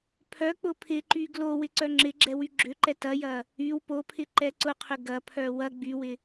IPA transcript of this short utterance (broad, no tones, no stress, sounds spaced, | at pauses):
pʰ œ k͡p ʊ pʰ ɪ ǃ y ɡ l o w ɪ ǀ œ ŋ͡ǁ ɪ ɡ͡ǁ ɛ w y ɡ͡ǁ ʏ ǃ ɛ t ɐ j ɐ | y w p o pʰ ɪ ǃ ɛ ǀ ʊ qʰ ʏ ɡ ɐ pʰ œ w ɐ ɡ͡b y w ɪ